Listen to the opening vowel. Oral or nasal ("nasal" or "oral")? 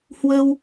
oral